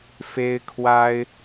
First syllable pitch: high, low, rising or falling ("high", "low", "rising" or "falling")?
high